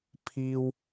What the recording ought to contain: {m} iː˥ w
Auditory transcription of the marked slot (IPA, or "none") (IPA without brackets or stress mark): pʰ